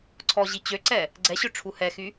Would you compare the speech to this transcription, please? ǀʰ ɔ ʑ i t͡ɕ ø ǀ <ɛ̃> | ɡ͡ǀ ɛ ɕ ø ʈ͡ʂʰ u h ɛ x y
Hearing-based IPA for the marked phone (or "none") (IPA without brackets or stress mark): ɛ